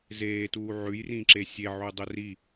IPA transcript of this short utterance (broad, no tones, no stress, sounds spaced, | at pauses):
z eː t uː ʕ ʉ j r ĩ ǁ e sʲ e ʕ u dˤ ɵ r i